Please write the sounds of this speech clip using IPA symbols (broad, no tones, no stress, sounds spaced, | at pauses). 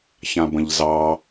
ç ã b ə̃ ʎ z ɑ